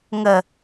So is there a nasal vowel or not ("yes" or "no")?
no